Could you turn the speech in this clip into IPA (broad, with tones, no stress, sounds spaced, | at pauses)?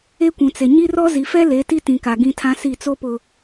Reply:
e˦ kʷ ũ˨ t͡s e˨ ɲ i˦ r ɔ˦ z i˨ f ɛ˦ l e˨˦ t i˦ t ĩ˨ k a˨ ɡ ĩ˦ tʰ ã˦ s i˦˨ t͡s o˦ p ʊ˨